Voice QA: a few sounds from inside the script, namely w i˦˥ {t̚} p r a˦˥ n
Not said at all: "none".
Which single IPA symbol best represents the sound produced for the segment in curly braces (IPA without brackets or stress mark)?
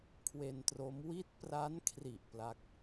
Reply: t̚